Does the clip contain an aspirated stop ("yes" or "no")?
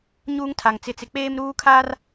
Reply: yes